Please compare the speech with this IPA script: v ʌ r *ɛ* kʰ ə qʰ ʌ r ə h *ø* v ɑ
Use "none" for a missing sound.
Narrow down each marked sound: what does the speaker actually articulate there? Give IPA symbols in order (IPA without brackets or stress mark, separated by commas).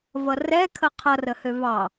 ɛ, ø